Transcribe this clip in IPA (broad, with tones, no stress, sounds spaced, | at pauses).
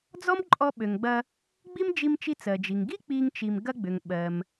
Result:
d͡z ɔ˥ m ǃʼ ɔ˧ ɓ ø˩ ŋ ɡ͡b ɐ˧ | ɡ͡b i˥ m d͡ʒ i˧ m t͡ʃ i˧ t͡s ɜ˩ d͡ʒ i˩ ŋ ɡ i˥ k͡p i˧ ŋ t͡ʃ i˩ m ɡ ɐ˧ ɡ͡b ʏ˩ ŋ ɓ ɜ˩ m